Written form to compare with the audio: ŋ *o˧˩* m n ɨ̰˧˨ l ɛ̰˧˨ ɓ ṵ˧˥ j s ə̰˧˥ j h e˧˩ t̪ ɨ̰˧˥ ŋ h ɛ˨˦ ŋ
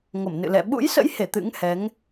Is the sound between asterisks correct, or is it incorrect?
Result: correct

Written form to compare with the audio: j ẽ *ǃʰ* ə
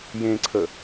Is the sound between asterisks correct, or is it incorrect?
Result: incorrect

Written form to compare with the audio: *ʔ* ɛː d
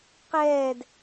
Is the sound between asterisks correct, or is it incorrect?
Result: incorrect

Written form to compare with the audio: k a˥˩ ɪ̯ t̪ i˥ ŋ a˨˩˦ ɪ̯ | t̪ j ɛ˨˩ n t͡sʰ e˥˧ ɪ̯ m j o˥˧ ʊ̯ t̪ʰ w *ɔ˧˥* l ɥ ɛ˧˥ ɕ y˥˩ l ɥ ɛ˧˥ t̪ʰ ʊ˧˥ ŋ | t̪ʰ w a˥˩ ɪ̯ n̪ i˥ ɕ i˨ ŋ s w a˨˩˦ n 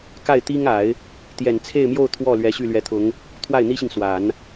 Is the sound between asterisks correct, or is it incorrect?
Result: incorrect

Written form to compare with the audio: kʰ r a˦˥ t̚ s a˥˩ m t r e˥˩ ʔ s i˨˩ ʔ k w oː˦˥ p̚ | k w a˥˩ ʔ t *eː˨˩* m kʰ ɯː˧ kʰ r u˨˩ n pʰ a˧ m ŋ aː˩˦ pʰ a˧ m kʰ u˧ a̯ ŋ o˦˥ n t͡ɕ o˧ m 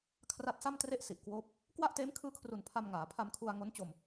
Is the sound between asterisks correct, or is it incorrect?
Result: incorrect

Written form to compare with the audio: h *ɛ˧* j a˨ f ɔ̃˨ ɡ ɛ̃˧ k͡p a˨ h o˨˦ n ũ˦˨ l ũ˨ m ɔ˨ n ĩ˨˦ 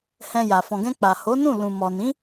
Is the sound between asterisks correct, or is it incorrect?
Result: incorrect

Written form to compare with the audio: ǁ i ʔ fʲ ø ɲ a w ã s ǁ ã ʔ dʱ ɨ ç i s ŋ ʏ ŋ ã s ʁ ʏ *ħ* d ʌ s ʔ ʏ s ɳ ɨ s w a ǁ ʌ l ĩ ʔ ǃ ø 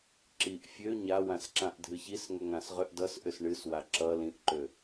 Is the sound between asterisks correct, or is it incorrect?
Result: incorrect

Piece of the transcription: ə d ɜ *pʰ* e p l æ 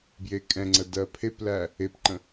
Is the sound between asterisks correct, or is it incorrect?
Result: correct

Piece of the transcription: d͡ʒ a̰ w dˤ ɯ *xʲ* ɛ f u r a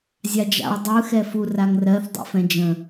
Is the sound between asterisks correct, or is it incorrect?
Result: incorrect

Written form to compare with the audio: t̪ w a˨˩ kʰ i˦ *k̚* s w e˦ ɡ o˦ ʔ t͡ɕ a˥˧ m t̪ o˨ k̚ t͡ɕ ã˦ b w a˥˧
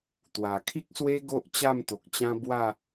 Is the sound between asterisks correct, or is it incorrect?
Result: correct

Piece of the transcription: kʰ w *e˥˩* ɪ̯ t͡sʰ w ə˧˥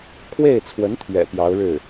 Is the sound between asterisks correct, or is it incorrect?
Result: correct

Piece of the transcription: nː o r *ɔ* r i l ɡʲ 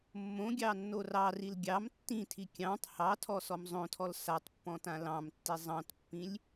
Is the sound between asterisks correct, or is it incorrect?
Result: incorrect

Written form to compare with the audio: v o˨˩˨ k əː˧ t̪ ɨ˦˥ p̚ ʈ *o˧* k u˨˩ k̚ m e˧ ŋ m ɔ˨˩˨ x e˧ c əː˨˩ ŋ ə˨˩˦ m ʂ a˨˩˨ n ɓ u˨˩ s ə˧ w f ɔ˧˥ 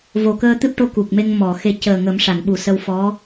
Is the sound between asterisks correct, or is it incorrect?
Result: correct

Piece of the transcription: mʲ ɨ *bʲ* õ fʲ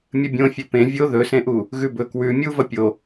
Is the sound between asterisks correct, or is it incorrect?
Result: correct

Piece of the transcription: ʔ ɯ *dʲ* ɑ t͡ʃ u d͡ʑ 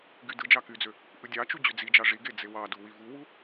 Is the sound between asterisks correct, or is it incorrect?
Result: correct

